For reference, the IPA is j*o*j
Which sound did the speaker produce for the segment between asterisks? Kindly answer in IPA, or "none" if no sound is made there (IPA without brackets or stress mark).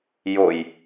o